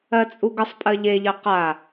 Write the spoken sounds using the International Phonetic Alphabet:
ɜ t͡sʼ u ɡ ə sˤ pʼ ɜ ʎ e ʎ ɜ q a

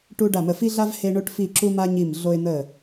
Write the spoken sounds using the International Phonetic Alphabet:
ʈ u˧ ɖ a˧˩ m ə˧˩ f i˧ ɮ a˧ v h e˧ ɳ o˧ ʈ f i˧˩ ǁ u˧ m a˧ ɲ i˧˩ m ɮ o˧ ɪ̯ n̪ ə˧˩

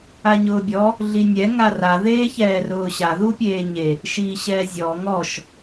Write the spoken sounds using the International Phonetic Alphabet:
a ɲ ʊː bʲ ɔ | ɮ i nʲ ɛ ŋ a r a ð eː ç ɛː r ʊː ɕ a ð u pʲ eː ɲ e | ʃ iː ɕ ɛː zʲ ɔ ŋ ɔ ʃ

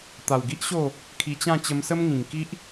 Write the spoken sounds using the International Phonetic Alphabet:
t̪ a˨˩ w ɡ i˦ ʔ ɕ o˥˧ | kʰ i˧ t͡ɕ ã˥˧ t͡ɕ ə˧ m s ə˦ m ŋ ĩ˨˩ ŋ k i˦ ʔ

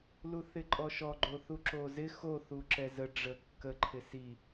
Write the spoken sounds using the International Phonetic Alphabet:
l u θ ɪ ǃʼ ɔ ʃ ɔ ɡ͡ǃ o θ u ǁ o z ɪ x o θ u ǁ ɛ z ə ɖ͡ʐ ə kː ə ǃʰ ɪ s i

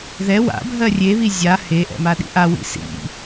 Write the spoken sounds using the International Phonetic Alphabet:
ð ɛ w a̰ bʱ ɜ rʲ e β i zʲ a h e ʔ ɛ̰ m a ɗ ḭ ʔ a w ḭ s ḭ

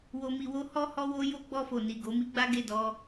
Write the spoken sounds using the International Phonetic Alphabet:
w o˧ m i˧ w o˦ h ɔ˦ h ɔ˧ w o˧ j o˦ ɡ͡b ɔ˧ f o˨ n i˨ ɡ o˨˦ m i˦ ɡ͡b a˦ ɡ e˦˨ d ɔ˧

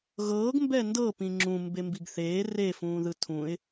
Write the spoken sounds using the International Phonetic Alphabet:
ɣ ɤː ɡ m b ɛ n d ɤ p ĩ ŋ͡ǁ ũ m b e m b i ɡ θ eː r e f ũː ð ɯ tʰ ũ ɪ̯

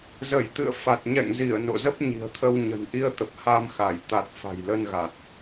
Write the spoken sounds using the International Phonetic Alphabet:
z ə˧˩ j t̪ ɨ̰˧˨ ə̯ f a˨˩ t̚ ɲ ɛ̰˧˨ ŋ z i˧˩ ə̯ n o̰˧˨ z ə˦˥ p̚ ɲ i̤˨˩ ə̯ t̪ʰ ə˧ w ɲ ə̤˨˩ n ʔ i˧ ə̯ t̪ ə˨˩ p̚ h a˧ m x a˧˩ j t̪ a˨˩ t̚ f a̤˨˩ j l ə˧ n ɣ a˨˩ t̚

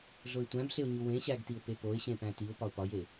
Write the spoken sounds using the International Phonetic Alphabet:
ɮ o ɪ̯ tʷ æ̃ b ɬ e ʊ̯ ɲ u w ẽ ɕ æ ɡ t i ʊ̯ p e p o ɪ̯ ɕ ẽ p æ̃ t i ʊ̯ p ɒ ʊ̯ p ɒ j e

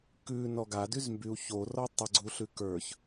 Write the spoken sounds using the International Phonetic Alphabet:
k ʉ n ɔ ɡ a d y z m b y u̯ ç o r ɔ tˤ ə ɡ͡ǀ u ɬ ʉ k ə˞ ç

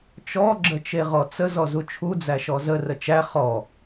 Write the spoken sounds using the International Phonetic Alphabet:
t͡ʃ ɔ ɡ͡ǁ ə t͡ʃ e ʁ ɔ t͡s ə z ɔ z u t͡ʃʰ u d͡z æ ʃ ɔ z ə r ə t͡ʃ æ χ ɔ

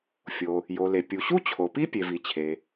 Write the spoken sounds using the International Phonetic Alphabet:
fʲ o˩ | j o˩ l e˩ pʲ u˩ ɕ u˥ t͡ɕʰ o˩ p i˥ pʲ e˩ v i˩ t͡ɕʰ e˩

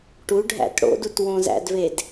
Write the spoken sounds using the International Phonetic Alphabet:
ʈ u ɖʱ æ̰ t ɽ o̰ d u t w õ z æ̰ d v e d

